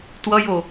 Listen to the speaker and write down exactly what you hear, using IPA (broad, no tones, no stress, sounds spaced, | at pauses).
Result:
t w ʌ j o